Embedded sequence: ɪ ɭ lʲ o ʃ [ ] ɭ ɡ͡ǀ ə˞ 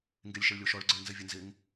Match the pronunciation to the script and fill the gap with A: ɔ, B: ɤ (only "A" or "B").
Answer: A